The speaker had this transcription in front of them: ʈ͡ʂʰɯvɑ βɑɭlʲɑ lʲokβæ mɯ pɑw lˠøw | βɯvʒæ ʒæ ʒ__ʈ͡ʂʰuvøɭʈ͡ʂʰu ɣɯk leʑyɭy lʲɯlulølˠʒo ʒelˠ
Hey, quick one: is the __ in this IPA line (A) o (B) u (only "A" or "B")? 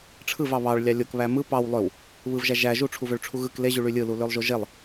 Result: B